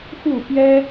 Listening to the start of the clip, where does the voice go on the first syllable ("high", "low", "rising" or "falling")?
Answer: falling